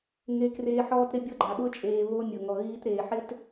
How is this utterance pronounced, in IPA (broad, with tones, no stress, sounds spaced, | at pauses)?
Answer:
ŋ e˦ k r eː˦ ħ ɔː˦ t ɾ ɪ˦ bʲ ɔ˦ ɡ͡ǃ a˨ ɓ ʊ˦ t͡ʃʼ eː˨ β o˦ mʲ ʊ˨ ŋ ɔ˨ ɣ iː˦ t ɾ eː˨ ħ ɪ˦ t